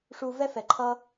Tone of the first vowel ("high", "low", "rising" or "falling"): low